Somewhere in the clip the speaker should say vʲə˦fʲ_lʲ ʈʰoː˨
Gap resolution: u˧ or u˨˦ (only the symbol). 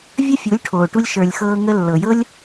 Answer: u˨˦